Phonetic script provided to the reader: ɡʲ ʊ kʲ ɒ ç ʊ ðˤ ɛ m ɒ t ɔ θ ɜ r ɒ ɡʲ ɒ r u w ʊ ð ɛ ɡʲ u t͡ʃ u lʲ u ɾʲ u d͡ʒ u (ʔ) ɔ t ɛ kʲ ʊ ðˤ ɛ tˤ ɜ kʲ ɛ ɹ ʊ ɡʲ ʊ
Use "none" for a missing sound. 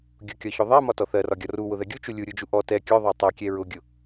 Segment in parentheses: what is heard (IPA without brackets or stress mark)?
ʔ